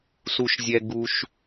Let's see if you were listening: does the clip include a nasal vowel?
no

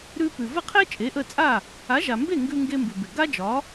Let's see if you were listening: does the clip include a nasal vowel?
no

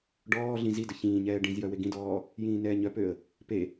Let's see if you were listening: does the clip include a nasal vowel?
yes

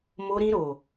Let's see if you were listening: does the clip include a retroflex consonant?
no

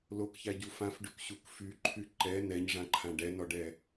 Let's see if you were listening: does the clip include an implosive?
no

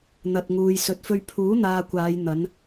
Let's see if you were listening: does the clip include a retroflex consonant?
no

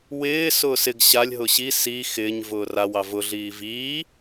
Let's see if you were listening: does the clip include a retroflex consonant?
no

